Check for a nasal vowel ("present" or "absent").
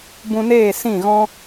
present